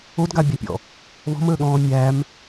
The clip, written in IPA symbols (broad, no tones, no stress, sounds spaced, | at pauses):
o d ɡ a bʲ a pʲ ɔ̰ | β ɔ̤ m əː ɠ ɔ̃ː mʲ æ m